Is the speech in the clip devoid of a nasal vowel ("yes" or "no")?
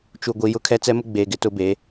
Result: yes